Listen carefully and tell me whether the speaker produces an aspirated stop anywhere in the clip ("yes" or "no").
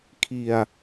yes